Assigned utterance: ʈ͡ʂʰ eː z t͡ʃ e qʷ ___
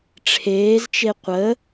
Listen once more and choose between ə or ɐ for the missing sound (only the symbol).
ə